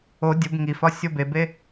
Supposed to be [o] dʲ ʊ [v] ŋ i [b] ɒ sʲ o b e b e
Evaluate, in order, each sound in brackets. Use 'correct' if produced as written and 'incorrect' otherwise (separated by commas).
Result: correct, incorrect, incorrect